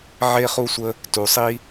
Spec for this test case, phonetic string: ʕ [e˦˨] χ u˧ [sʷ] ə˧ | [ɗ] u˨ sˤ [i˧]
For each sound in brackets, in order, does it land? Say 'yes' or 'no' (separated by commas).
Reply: no, yes, no, yes